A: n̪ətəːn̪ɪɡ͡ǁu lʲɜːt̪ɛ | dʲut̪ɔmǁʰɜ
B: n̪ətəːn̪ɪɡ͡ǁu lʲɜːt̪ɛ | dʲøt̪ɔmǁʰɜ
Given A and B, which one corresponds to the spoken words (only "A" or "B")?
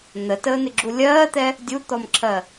A